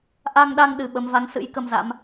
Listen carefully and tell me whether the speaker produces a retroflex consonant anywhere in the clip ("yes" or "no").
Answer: no